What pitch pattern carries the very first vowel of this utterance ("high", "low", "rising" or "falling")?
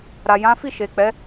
low